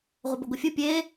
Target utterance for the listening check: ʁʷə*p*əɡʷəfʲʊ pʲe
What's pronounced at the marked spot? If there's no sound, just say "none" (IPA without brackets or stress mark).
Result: b